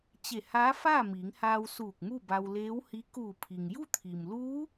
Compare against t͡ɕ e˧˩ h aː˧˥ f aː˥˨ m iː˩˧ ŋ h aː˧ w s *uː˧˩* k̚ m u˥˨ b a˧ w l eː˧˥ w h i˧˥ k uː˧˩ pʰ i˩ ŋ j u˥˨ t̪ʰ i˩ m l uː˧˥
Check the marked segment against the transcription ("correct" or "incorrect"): correct